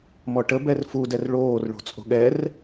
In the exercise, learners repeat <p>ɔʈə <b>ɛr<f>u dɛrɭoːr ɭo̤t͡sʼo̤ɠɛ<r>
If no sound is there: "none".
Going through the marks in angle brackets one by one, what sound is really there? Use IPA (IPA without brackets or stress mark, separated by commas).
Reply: m, b, f, r